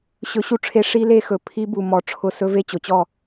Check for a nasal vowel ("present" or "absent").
absent